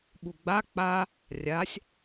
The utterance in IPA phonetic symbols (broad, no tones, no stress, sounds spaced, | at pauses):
ɓ u ɡ͡b a k͡p a | rʲ a sʲ